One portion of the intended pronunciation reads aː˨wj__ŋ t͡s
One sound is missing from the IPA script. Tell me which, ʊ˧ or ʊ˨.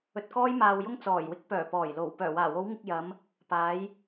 ʊ˧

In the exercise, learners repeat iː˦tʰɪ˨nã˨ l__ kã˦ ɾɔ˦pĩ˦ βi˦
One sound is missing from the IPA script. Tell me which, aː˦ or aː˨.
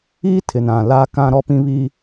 aː˦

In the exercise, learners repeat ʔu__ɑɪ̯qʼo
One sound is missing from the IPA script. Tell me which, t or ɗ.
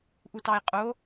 t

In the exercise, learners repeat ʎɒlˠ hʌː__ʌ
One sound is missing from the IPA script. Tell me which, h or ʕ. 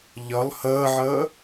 ʕ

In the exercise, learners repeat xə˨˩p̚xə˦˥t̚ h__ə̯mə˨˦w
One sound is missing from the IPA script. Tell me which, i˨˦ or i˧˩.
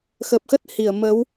i˧˩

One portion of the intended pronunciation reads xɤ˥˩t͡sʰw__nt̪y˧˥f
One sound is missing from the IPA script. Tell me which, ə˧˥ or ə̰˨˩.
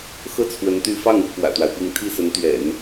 ə˧˥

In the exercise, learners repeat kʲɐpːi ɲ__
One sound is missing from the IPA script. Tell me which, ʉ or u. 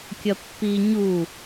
u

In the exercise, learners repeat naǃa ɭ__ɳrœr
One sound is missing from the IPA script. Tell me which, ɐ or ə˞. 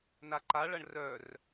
ɐ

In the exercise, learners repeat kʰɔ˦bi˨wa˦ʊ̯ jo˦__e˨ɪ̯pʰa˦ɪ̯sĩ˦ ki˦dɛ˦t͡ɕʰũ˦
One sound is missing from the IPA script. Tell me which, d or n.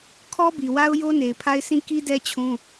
n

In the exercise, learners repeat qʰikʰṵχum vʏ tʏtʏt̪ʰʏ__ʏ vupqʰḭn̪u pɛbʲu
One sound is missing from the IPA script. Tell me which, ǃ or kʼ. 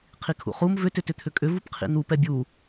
kʼ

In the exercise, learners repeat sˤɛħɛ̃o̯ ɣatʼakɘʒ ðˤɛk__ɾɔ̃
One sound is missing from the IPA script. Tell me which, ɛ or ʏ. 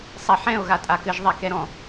ɛ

